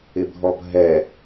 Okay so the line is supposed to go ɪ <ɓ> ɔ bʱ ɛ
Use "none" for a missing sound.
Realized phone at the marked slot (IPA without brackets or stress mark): bʱ